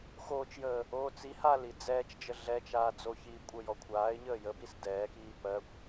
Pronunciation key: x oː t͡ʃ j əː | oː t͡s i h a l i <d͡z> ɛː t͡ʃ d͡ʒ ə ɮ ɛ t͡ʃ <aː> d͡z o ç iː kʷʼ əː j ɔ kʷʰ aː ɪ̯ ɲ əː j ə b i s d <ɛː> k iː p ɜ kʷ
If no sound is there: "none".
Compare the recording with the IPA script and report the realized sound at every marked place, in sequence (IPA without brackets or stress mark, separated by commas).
d͡z, aː, ɛː